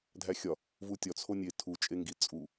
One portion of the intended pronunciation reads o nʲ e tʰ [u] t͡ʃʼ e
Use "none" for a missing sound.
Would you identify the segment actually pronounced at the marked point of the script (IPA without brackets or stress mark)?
u